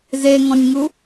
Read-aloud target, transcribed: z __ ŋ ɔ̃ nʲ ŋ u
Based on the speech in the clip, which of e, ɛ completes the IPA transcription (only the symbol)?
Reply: e